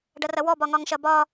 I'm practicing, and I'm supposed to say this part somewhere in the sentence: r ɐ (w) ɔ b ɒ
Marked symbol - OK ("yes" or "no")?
yes